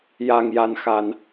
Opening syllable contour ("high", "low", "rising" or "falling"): low